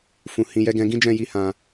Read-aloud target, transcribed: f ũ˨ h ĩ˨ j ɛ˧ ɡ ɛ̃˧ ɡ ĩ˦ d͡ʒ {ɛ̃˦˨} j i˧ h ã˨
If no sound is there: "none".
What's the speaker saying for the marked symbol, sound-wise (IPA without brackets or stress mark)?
ɛ̃˦˨